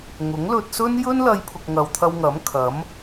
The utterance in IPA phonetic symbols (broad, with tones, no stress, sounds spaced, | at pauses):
ŋ ʊ˨˥ ŋ l ɵ˧ t̚ s ɵ˥ n j ɵ˥ n l ɐ˧ j pʰ ʊ˨ k̚ ŋ ɐ˨ w t̪ʰ ɐ˧ w ŋ ɐ˨˥ m kʰ ɐ˨˥ m